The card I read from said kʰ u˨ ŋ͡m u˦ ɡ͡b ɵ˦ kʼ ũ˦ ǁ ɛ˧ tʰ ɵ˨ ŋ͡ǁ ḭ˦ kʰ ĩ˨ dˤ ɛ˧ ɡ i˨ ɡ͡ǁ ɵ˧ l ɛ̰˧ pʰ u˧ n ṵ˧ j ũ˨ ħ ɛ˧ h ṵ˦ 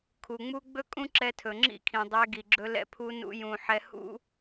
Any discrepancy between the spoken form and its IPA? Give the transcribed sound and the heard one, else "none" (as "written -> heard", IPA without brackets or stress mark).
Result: none